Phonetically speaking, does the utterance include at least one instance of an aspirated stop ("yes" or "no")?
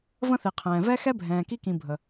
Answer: yes